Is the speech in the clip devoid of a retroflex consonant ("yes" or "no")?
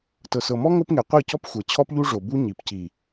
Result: no